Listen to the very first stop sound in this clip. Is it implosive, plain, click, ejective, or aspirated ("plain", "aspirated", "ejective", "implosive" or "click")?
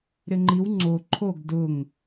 click